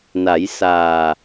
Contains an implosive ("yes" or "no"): no